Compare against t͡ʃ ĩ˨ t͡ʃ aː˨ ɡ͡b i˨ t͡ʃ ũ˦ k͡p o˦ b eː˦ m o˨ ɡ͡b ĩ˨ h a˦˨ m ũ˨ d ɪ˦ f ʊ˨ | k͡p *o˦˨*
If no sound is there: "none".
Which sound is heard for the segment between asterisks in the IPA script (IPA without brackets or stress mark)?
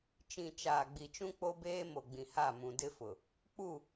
u˦˨